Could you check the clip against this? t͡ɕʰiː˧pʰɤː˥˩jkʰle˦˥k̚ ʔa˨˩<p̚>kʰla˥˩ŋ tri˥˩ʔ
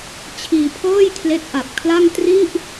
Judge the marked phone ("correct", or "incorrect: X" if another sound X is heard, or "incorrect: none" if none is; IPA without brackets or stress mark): correct